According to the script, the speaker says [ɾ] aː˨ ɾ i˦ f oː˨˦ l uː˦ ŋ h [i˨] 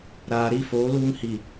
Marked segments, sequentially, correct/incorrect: correct, correct

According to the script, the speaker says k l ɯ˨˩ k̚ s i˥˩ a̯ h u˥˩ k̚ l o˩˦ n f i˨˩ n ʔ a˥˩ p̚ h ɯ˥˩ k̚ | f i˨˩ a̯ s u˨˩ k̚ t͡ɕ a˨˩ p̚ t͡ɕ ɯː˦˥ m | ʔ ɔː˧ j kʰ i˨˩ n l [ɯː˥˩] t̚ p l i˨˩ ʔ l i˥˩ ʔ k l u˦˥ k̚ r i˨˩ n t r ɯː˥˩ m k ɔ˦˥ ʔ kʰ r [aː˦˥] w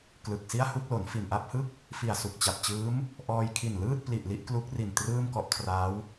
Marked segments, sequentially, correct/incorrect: correct, correct

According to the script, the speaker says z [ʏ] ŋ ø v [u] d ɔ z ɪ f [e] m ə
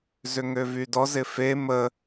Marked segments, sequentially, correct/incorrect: correct, incorrect, correct

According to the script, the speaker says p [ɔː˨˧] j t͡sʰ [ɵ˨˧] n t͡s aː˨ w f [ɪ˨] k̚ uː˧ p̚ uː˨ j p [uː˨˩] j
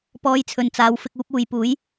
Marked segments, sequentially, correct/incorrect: correct, incorrect, incorrect, incorrect

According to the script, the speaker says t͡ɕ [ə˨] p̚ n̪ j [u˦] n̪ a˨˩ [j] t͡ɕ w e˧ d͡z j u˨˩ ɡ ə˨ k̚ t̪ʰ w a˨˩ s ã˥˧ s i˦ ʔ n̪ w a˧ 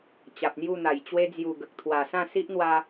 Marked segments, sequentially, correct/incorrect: incorrect, incorrect, correct

